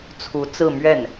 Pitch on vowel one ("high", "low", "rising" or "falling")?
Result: rising